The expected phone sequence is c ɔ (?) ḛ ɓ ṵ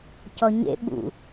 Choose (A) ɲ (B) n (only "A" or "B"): A